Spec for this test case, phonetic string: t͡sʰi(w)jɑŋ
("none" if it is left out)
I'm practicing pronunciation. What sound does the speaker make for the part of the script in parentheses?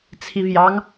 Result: v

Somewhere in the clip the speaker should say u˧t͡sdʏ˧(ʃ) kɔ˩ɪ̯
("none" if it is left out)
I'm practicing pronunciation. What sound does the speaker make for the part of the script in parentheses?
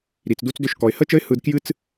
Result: ʃ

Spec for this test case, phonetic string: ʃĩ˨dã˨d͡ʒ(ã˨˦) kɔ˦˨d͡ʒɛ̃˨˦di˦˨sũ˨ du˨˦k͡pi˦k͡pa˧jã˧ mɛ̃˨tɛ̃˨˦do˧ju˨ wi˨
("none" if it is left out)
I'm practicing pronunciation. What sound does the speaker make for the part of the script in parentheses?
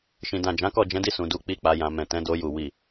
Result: ã˨˦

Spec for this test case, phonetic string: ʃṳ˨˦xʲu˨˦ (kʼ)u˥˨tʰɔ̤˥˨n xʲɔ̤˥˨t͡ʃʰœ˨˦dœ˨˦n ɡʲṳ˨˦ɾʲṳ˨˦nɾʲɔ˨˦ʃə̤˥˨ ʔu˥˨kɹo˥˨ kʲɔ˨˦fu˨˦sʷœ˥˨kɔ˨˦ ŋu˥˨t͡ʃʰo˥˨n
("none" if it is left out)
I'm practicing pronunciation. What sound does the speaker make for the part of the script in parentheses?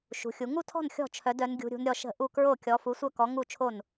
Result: ŋ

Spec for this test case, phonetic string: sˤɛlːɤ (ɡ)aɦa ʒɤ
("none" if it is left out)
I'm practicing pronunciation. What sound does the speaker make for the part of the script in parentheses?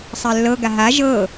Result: ɡ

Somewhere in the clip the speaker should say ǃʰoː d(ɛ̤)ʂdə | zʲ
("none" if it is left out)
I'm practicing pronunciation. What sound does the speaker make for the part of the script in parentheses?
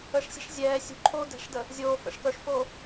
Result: ɛ̤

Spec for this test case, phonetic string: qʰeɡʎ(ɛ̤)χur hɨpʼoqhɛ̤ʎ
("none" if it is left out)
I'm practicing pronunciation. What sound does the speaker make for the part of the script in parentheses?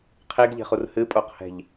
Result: e̤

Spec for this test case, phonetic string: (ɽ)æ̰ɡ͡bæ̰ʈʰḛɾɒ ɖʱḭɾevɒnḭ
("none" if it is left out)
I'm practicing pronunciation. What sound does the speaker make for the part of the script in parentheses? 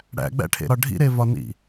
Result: ɽ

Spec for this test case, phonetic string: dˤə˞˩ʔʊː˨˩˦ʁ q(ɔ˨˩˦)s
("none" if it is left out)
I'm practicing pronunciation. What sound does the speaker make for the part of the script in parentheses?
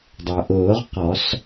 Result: ɔ˨˩˦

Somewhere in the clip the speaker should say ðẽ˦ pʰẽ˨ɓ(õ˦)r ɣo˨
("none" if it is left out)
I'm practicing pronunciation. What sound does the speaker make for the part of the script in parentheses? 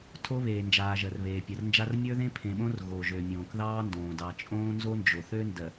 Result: õ˦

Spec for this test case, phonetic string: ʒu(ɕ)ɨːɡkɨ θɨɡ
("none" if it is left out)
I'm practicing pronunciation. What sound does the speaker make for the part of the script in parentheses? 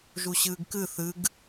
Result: ɕ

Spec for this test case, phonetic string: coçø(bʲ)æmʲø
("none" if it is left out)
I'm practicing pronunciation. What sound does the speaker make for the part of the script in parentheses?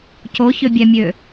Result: bʲ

